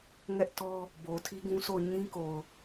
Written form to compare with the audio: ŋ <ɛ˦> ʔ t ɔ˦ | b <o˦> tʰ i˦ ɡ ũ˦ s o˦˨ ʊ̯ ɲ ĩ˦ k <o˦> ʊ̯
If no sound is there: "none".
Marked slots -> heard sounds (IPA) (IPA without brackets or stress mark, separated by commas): ɛ˦, o˨, o˨